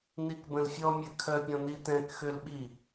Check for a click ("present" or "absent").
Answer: absent